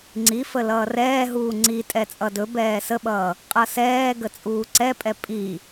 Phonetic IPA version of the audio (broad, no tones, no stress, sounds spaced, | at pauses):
ŋ͡ǀ i f ə l ʌː r ɛː ɦ uː ŋ͡ǀ i tʼ ɛ t͡sʼ ʌ d ɵ b ɛː s ə ɓ ʌː | qʼ ʌ s ɛː ɡ ə t͡sʼ uː ǀ ɛ pʼ ɛ pʼ i